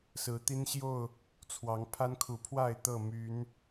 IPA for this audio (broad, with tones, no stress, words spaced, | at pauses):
sɹ̩˨˦t̪i˦nɕjo˥˨ʊ̯ | t͡sʰwɑ˨˦ŋ pʰa˦nkʰu˨˩pʰwa˥˨ɪ̯ t̪ɤ˥˨ my˨˦n